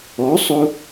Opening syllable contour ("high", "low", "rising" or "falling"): rising